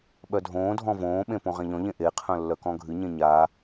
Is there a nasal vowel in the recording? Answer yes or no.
yes